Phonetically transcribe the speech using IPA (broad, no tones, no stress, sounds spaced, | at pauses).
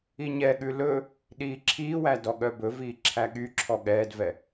i ɲ ɛ ɠ ʉ l ɵ | ɗ iː ǁʰ iː w æ d ɔ ɠ œ b ɵ v iː ǁʰ æ ɠ y ǁʰ ɔ ɠ ɛː d v ɛ